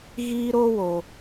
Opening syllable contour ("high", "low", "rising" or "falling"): high